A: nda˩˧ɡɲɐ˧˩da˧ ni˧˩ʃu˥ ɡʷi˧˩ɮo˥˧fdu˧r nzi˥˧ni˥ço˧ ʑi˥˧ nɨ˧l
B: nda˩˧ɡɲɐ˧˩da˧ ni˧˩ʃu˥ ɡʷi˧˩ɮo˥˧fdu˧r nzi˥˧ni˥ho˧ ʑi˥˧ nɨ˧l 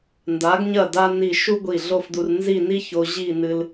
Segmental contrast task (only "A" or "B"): A